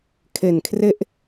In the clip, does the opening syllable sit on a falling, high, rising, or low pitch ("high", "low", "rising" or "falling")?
low